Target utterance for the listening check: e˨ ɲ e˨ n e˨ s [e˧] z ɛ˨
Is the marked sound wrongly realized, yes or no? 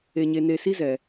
yes